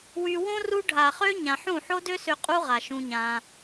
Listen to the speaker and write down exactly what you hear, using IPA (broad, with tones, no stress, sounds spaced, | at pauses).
w y˧ w õ˦ r u˧ ɖʱ a˨ χ ø˧ ɲ ã˨ ħ ũ˦˨ ħ o˦ d ø˦ s ø˧ qʼ u˦ ʁ a˨ ʃ ũ˧ ɲ ã˧